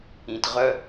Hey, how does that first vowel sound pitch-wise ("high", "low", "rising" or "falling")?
low